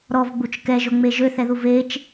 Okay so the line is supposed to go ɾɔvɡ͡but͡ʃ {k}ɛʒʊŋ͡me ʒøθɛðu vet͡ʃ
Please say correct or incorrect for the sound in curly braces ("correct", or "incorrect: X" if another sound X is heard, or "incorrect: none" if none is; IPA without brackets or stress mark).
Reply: correct